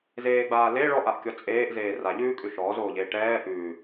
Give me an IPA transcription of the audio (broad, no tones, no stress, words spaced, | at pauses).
zeːɡ͡baːle ɭɔʔaʔkʲɔ t͡sʼeːʔzeː raʎʉːkʼʉ ʃɔːzoːʎeː ʈɛː ʔʉː